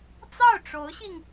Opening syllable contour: falling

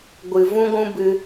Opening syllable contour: low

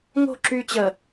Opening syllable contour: falling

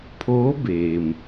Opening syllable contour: rising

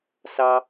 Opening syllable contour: low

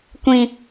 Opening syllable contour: high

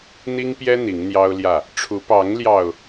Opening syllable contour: high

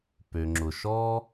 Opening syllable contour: low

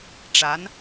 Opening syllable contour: rising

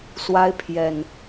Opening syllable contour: high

